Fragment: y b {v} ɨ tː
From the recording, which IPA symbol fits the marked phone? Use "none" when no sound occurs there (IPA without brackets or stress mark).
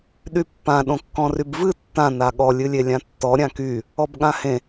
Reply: v